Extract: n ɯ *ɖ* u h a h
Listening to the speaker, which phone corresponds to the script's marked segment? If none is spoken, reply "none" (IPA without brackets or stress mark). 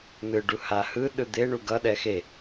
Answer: ɖ